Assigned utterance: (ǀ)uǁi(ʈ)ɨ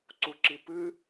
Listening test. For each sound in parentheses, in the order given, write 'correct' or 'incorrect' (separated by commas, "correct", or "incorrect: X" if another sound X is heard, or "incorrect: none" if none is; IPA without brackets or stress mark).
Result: correct, incorrect: p